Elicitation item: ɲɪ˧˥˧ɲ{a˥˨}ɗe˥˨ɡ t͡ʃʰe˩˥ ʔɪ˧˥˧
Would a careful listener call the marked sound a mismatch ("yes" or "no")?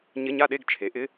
no